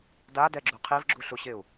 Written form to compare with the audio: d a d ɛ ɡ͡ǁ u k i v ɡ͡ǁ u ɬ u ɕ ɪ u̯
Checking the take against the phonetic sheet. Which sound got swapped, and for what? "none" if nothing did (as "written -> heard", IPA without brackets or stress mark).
k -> qʰ